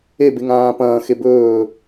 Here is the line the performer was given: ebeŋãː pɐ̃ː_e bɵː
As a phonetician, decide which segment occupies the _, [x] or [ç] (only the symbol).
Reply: x